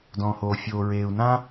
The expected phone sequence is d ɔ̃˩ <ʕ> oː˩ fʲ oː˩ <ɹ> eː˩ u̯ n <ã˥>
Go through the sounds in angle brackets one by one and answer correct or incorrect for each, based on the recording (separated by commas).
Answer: incorrect, correct, correct